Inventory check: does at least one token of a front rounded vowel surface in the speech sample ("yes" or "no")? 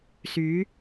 yes